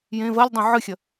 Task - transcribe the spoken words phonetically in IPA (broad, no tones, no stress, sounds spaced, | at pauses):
j ẽ v ɐ lʲ dˤ õ ʕ ɨ xʲ ɐ